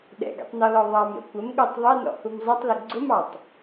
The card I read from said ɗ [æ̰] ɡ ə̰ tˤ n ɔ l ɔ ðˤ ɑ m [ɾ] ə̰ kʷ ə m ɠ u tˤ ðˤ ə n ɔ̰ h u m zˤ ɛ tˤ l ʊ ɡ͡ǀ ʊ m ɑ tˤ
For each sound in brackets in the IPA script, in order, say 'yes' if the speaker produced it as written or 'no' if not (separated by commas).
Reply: no, yes